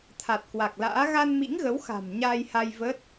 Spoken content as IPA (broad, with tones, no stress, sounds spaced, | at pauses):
t̪ʰ a˨˩ t̚ k w a˨˩ k̚ l a̰ː˧˥ ɣ a˧ n m ḭ˧˥ ŋ ɣ ə˨˦ w x a̤˨˩ m ɲ aː˧ j h a˧ j v əː˦˥ t̚